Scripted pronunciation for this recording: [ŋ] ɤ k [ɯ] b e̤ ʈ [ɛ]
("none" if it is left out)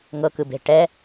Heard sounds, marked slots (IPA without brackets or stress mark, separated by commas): ŋ, ɯ, ɛ